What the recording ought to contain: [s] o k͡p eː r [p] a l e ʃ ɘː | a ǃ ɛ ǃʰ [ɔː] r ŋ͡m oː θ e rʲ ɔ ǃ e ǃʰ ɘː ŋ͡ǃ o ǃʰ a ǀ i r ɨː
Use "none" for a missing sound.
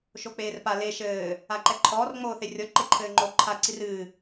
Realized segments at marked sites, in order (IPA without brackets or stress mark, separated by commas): ʃ, p, ɔː